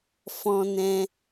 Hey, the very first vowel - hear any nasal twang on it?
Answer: yes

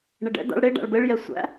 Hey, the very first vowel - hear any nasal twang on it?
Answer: no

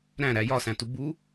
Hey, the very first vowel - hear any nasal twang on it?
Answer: yes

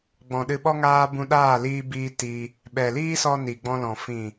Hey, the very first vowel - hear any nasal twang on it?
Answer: yes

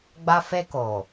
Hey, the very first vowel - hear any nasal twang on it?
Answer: no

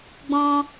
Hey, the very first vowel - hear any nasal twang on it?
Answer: yes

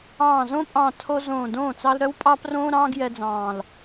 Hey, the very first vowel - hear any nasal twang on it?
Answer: yes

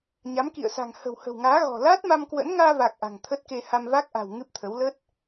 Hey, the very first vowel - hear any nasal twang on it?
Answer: no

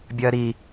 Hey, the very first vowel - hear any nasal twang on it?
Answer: no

